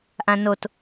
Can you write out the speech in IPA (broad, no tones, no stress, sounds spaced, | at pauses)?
ʔ ã n o t